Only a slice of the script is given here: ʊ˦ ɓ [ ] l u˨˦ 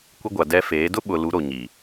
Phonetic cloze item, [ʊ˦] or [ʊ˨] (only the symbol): ʊ˨